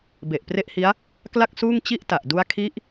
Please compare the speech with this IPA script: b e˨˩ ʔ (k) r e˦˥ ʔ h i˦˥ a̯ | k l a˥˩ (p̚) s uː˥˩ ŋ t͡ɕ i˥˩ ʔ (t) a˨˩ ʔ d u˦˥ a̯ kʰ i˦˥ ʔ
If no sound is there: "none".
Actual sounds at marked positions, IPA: p, k̚, t

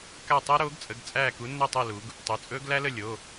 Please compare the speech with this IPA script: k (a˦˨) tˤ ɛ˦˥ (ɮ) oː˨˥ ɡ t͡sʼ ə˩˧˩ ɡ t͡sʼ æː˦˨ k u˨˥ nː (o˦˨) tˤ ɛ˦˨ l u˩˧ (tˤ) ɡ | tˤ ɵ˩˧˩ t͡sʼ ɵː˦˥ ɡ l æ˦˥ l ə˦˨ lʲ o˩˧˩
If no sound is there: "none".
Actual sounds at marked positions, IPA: a˦˨, ɾ, ɵ˦˨, none

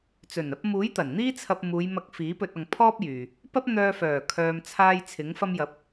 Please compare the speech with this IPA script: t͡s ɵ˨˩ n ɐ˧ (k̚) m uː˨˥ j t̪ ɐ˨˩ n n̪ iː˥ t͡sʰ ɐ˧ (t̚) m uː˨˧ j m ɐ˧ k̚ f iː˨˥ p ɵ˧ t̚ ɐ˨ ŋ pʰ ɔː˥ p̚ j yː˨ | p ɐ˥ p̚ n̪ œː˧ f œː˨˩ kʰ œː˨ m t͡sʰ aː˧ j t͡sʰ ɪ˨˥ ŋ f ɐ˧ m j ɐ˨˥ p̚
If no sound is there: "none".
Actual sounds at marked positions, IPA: p̚, p̚

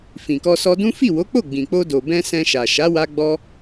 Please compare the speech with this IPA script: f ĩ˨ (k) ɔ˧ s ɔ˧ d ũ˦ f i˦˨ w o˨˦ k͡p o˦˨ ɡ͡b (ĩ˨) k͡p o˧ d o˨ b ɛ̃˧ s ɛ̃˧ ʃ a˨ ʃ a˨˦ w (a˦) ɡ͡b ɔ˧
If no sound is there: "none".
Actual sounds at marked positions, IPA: k, ĩ˨, a˧

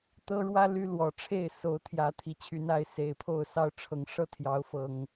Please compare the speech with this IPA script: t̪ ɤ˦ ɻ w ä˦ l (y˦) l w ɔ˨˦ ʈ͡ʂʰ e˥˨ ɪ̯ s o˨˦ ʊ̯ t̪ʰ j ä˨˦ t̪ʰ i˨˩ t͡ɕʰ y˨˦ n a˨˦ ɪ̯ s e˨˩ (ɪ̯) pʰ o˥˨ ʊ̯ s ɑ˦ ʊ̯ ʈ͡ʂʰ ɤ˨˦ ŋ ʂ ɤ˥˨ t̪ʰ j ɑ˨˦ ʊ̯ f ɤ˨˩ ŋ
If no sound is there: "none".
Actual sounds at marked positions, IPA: y˦, ɪ̯

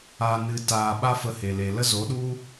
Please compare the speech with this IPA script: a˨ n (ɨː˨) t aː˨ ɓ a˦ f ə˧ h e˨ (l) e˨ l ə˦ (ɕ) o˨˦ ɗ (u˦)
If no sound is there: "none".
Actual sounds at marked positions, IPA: ɨ˨, l, z, u˦

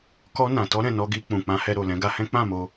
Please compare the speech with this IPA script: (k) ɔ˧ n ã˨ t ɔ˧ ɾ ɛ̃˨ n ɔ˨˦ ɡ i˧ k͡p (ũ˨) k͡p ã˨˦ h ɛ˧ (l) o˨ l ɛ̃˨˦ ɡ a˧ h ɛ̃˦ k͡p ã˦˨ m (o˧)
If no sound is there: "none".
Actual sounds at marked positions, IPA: k, ũ˨, ɾ, o˧

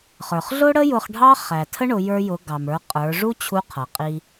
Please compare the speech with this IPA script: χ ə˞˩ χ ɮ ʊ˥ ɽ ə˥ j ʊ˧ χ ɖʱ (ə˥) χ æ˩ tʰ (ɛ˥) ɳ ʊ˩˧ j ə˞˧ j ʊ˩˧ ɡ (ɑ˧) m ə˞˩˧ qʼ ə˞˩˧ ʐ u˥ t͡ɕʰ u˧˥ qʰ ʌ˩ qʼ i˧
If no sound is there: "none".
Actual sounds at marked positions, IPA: ɑ˥, ə˥, ɑ˩

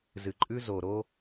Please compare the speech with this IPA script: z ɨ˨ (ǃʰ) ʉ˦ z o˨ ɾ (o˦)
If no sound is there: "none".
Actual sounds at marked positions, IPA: ǃʼ, o˦

